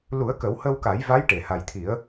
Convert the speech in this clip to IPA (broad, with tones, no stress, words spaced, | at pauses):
lu˨˩˦ə̯kə˨˩˦whə˧wka˨˩˦j va˧˥jʈe˨˩˨ha˨˩jt̪ʰi˨˩˦ə̯